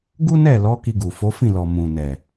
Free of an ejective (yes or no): yes